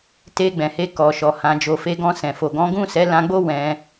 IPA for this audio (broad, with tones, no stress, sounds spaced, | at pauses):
t e˧ ɡ͡b ɛ̃˨ h e˧ k ɔ˨ ʃ ɔ˨ h ã˨ d͡ʒ o˨ f e˧ ɡ ɔ̃˧ s ɛ̃˨ f o˨ ɡ ɔ̃˨˦ ɡ ũ˦˨ s ɛ˨˦ l ã˧ ɡ͡b o˦ w ɛ̃˧